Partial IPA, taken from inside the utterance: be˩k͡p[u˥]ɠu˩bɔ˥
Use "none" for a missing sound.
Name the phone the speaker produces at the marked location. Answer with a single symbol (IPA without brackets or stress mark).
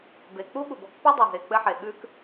u˥